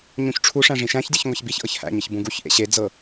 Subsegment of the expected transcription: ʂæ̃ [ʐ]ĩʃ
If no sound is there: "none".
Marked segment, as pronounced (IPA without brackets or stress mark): ʐ